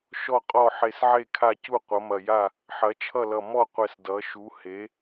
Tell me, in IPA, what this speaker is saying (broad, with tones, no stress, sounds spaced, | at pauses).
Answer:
ʃ ɔ˥˩ qʼ ɔ˥˩ ħ e˧˩ s ʕ e˥˩ kʰ a˥˩ c u˥˩ qʷ ʌ˩˥ m ɐ˧˩ j a˥˩ | ħ ɐ˩˥ t͡ʃʰ ʌ˥˩ l ʌ˧˩ m ɔ˥˩ qʷ ɛ˧˩ s d ʌ˩˥ ʃ u˩˥ h e˩˥